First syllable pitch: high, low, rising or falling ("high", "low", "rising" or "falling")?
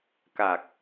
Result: low